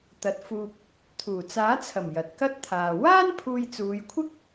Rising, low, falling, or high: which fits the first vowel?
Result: rising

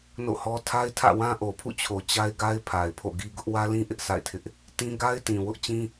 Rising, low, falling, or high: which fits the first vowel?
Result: falling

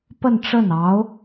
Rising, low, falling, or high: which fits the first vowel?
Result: falling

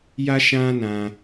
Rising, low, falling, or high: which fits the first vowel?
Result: high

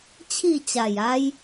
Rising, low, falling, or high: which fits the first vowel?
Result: falling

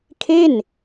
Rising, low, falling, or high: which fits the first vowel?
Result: falling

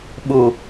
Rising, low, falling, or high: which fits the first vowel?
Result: low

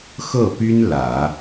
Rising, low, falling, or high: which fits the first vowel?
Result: falling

